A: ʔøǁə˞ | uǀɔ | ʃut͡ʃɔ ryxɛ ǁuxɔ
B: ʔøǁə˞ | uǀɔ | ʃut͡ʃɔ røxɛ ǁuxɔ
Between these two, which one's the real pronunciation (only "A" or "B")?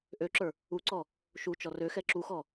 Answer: B